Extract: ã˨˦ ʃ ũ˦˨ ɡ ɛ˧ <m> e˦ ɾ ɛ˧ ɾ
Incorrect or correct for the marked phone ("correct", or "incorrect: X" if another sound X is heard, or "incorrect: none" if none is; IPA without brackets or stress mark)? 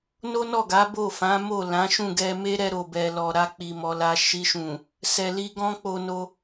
correct